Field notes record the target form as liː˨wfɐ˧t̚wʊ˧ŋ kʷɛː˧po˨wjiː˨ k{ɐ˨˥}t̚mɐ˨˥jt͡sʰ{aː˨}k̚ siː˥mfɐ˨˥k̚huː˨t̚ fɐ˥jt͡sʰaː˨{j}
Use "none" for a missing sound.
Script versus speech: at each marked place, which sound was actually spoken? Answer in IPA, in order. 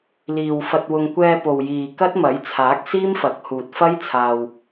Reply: ɐ˥, aː˨˥, w

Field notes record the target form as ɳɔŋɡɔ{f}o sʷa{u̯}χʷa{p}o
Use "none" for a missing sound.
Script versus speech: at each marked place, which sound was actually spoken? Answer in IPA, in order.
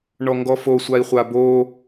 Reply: f, i̯, b

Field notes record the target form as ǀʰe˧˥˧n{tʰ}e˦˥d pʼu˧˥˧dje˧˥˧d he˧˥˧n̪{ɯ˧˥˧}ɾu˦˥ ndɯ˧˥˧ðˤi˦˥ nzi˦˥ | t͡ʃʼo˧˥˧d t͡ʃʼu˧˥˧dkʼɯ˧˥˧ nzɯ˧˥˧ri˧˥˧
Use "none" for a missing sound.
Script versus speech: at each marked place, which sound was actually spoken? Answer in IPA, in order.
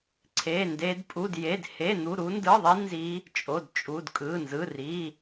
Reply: d, u˧˥˧

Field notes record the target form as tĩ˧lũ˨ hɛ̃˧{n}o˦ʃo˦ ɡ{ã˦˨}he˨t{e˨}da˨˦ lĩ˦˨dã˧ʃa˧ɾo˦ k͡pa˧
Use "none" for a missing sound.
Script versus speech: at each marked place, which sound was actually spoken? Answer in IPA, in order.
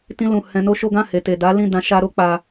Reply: n, ã˦˨, e˨

